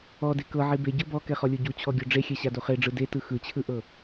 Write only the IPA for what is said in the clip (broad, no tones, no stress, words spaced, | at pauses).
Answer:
ɔde kɤʕi beɟɤ bɔkɛχɔlʲo ɟut͡ɕʰɔɡʲo ɖ͡ʐexʲɛɕado χeɖ͡ʐɯ detɯ xɯt͡ɕʰɯʔɤ